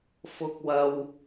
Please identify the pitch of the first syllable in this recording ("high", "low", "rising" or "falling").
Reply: rising